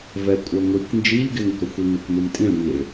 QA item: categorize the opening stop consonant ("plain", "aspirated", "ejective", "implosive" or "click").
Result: ejective